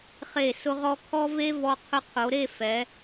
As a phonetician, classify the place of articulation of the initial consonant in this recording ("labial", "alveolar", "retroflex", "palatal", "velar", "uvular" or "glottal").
uvular